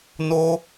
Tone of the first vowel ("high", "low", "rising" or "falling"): high